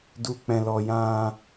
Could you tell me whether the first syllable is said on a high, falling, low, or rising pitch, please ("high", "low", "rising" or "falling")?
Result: low